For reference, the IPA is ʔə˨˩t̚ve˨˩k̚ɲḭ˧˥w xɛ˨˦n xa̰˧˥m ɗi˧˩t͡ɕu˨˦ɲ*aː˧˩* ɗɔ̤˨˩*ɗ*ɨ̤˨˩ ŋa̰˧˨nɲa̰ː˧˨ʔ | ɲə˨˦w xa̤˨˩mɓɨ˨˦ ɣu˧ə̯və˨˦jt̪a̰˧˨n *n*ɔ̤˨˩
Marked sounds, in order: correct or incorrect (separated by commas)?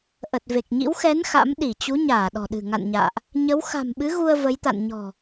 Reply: correct, correct, incorrect